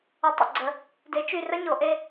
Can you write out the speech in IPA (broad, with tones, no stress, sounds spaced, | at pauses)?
ə˩˥ tˤ ə̰˧˩ ɡ͡ǀ ə˩˧ | d e˩˥ t͡ʃ y˧˩ r ə˦˥ ɲ o˩˧ ʔ e˧